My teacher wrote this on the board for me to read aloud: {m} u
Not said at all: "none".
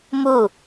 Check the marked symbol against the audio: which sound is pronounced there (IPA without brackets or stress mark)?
m